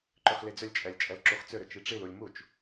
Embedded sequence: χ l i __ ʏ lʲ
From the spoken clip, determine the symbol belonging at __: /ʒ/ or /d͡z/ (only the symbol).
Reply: d͡z